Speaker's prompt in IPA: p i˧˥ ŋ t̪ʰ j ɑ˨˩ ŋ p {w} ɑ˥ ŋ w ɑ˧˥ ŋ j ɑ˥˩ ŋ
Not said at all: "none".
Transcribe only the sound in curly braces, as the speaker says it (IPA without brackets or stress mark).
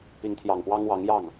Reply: w